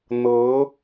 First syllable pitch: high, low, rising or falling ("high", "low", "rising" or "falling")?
rising